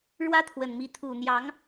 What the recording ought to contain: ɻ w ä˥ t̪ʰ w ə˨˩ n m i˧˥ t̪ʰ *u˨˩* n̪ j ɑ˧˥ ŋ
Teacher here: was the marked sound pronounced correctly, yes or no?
yes